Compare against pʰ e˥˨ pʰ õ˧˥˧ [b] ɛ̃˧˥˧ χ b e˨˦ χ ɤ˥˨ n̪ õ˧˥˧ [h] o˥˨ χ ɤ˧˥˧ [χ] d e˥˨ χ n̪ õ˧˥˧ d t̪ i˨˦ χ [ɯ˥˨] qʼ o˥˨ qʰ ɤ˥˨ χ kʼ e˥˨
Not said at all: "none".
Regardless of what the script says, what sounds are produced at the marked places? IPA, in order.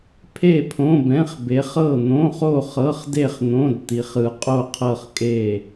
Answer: b, χ, χ, ɯ˨˦

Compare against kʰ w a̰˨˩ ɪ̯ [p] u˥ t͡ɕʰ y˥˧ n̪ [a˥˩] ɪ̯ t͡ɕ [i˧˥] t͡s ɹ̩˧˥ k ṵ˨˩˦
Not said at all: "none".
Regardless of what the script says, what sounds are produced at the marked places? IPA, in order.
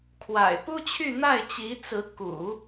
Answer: p, a˥˩, i˧˥

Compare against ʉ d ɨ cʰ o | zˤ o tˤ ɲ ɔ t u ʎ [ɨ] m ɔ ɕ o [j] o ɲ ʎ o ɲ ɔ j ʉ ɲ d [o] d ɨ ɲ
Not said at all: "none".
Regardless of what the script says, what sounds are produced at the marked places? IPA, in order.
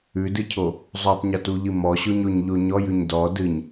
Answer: ɨ, ɲ, ɔ

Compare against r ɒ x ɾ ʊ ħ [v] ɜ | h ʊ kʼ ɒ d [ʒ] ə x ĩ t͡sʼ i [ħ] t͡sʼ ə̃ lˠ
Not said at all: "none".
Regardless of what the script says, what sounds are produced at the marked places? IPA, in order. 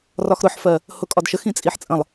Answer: f, ʃ, ħ

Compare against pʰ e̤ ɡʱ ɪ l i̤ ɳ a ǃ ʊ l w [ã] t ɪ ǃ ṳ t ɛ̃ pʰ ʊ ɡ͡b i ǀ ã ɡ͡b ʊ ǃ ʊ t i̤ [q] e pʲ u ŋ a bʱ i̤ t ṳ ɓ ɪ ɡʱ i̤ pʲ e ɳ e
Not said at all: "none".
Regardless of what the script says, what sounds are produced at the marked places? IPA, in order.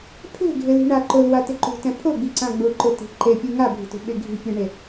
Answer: a, ǃ

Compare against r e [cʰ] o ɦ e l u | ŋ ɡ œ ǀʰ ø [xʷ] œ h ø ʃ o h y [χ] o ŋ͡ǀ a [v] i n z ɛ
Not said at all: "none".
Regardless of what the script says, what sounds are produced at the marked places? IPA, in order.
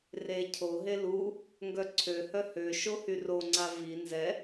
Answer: cʰ, h, r, v

